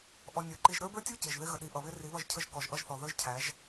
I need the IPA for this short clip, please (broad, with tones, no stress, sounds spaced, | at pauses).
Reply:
ʔ ɔ˨ nʲ ə˞˨ ǃ i˨ ʒ ɾ ə˞˦ b ə˞˦ tʲ u˦ c ɪ˨ ʒ ð ɪ˦ ɣ ə˨ ɗ i˨ ʔ ʌ˨ β ɪ˦ r i˨˦ β ʌ˦˨ ʒ cʰ ə˦ ʒ k ɔ˨ ʒ ʔ ʌ˦ ʒ θ ɔ˨ ð ə˞˦ ʒ cʰ æ˨˦ ʒ